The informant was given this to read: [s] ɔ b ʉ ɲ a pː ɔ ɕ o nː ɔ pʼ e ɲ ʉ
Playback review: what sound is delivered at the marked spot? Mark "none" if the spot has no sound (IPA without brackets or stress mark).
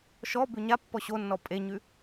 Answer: ʃ